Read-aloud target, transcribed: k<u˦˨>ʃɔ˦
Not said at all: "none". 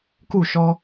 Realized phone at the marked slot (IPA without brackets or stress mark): u˦˨